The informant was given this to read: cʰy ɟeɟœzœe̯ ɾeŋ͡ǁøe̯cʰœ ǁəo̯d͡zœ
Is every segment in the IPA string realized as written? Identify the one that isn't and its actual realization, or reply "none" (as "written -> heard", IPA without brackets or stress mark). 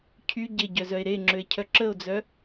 none